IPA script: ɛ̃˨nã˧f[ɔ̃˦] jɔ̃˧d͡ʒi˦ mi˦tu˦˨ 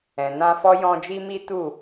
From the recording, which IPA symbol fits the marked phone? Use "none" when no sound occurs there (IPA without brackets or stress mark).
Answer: ɔ˦